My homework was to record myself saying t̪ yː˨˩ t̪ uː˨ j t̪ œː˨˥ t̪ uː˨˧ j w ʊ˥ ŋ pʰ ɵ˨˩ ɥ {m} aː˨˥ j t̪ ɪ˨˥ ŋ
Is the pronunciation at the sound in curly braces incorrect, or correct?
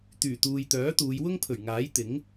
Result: incorrect